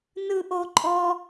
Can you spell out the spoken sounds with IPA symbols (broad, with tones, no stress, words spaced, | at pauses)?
nɯ˥ʔo˥ǃʼɔ˥